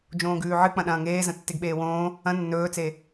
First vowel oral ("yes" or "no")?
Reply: no